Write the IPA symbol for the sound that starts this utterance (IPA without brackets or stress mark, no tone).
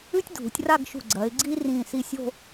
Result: ʉ